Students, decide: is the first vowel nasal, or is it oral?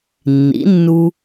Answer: oral